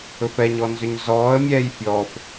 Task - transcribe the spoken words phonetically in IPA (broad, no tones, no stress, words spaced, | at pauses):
ɵfɛɲɔnzʏɲ zɔːə̯ mʲɛːjfʲɔːf